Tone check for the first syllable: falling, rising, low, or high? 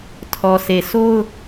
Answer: low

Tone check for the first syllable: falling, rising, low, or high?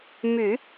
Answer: low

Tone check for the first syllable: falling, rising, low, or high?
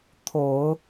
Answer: low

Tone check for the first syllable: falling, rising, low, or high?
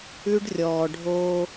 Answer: high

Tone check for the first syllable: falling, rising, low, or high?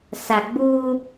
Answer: low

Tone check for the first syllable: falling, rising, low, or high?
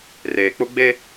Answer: low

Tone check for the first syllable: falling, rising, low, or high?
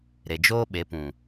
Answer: low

